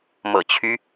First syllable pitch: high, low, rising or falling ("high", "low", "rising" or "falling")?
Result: low